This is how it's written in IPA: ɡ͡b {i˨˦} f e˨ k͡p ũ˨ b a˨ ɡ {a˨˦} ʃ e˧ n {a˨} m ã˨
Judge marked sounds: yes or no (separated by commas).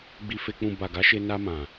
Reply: no, yes, no